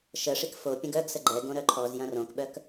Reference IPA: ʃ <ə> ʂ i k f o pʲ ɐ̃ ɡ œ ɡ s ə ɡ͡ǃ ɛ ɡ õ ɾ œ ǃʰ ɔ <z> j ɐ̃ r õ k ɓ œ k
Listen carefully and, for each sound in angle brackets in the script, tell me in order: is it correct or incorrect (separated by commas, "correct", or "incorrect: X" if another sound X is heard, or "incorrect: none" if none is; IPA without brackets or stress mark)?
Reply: correct, correct